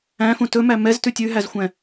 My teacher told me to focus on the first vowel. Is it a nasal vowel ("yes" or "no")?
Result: yes